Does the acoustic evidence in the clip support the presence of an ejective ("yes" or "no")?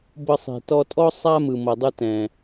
yes